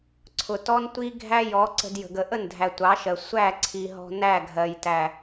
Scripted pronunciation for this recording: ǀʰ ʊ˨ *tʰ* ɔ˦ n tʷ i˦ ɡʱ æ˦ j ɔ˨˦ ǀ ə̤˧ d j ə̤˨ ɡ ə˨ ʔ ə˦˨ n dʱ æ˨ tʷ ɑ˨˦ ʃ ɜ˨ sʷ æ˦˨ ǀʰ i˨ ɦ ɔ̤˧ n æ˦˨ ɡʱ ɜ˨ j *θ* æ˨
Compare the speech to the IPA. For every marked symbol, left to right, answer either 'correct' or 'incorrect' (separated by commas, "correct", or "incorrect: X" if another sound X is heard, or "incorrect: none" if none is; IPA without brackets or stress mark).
incorrect: t, incorrect: t